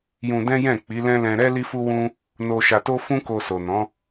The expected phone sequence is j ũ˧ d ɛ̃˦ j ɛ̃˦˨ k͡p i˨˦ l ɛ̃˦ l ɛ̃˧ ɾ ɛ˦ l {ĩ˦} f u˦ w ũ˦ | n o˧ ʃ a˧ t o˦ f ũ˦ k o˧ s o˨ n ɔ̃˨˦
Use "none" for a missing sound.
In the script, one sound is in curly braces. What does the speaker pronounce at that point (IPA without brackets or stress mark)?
i˦